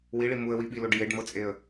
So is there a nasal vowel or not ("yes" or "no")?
no